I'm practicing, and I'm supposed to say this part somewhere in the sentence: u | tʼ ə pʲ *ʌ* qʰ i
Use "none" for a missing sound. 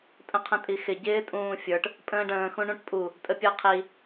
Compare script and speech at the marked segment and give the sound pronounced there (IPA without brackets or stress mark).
ə˞